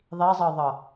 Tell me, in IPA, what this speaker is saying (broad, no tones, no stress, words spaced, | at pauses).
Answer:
ðˤizˤɤðˤɤ